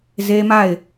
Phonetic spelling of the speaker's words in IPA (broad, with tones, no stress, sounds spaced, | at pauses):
z e˦ m a˦˨ ɪ̯